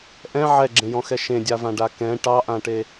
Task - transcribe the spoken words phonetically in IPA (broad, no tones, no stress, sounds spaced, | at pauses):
ʔ ɛ̃ ʕ ɛ ɡ͡ǁ ẽ j ɔ̃ x ɛ ʃ ẽ dʲ a v ã ɖ a k ɛ̃ ʈ ɑ ʔ ã ʈ e